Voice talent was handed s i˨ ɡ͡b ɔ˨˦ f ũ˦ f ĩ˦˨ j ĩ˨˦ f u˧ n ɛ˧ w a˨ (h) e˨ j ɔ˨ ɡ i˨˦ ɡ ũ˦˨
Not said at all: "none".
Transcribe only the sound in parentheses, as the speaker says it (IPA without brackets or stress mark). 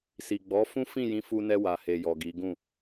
h